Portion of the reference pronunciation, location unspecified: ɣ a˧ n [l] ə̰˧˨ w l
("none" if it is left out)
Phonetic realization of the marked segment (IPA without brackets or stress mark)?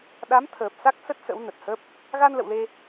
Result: l